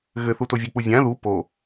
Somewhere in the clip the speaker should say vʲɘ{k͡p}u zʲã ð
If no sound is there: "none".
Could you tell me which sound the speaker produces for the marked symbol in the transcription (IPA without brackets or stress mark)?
k͡p